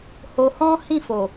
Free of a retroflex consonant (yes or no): yes